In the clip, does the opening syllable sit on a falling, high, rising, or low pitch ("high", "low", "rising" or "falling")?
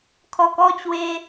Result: low